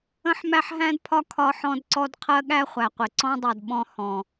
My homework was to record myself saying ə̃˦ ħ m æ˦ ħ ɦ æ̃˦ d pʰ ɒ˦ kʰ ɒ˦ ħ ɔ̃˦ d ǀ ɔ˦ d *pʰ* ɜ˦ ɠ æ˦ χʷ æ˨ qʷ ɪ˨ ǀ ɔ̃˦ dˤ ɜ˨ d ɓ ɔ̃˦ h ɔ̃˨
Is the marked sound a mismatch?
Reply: yes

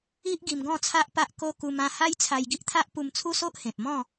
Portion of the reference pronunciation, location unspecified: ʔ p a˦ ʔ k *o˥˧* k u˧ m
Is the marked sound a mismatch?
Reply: yes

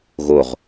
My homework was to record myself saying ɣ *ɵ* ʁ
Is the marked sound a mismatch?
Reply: yes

